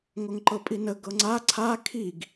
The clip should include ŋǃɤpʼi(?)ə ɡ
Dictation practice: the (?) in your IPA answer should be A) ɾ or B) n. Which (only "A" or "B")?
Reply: B